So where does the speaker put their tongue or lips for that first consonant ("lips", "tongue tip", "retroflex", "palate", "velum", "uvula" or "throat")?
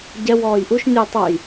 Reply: palate